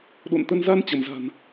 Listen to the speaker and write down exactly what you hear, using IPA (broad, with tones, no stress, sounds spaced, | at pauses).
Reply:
ɗ o̰˧˨ n t̪ ə˧ n z a˧ n t͡ɕ ə˧˩ m z a̤˨˩ n